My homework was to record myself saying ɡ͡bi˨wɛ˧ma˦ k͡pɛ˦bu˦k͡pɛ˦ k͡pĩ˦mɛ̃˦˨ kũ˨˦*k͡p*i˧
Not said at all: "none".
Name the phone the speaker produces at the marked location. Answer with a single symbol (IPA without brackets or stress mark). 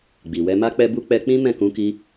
k